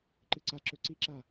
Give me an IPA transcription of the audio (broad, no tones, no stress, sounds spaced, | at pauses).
ǃ ɨ ǀ a ǁ ɵ ǀ i ǁ a